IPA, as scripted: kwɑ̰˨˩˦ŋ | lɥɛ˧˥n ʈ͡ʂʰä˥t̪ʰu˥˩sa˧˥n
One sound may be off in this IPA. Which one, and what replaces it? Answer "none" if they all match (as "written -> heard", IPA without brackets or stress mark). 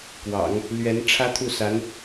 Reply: none